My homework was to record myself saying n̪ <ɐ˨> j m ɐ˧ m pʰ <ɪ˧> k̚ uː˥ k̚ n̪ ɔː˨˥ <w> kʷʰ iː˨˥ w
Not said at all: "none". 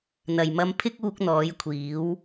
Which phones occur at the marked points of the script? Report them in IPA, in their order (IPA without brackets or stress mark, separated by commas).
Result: ɐ˨, ɪ˥, j